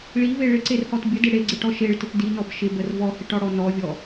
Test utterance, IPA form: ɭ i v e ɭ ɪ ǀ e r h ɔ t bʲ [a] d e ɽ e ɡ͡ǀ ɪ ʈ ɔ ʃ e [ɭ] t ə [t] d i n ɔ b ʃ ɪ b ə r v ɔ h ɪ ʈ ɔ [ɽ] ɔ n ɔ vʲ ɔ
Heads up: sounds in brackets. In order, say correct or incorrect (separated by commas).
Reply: incorrect, correct, correct, correct